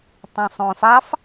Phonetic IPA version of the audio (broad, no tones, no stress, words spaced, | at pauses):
tˤõsˤõfɑf